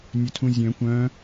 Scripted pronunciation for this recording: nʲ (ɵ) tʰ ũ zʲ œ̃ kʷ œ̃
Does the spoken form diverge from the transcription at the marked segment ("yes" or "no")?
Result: no